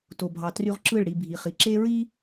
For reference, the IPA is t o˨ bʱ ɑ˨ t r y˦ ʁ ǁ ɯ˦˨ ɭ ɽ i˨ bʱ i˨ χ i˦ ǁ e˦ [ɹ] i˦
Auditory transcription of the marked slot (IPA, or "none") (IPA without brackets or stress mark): ɹ